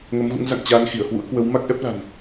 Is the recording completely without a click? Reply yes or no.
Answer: yes